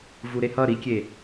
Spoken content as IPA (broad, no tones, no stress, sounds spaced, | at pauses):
v u ɾ e h ʌ ɾ i kʲ e